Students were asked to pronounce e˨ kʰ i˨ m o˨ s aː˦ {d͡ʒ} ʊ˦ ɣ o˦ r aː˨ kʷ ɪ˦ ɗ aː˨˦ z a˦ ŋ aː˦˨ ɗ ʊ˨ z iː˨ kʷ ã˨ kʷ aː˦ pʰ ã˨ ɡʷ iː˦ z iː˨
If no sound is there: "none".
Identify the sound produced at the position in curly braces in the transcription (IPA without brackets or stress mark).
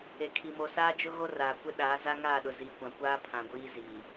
d͡ʒ